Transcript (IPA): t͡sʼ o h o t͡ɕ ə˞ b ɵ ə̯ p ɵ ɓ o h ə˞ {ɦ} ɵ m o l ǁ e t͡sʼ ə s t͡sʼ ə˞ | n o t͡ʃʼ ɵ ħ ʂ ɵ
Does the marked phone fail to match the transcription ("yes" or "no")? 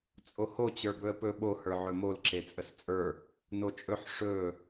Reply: yes